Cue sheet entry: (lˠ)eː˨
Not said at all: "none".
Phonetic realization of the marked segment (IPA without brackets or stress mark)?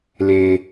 l